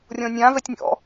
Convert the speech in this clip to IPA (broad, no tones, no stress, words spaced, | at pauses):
rʲɔ̃nʲã vɛtʲnʲɔ̰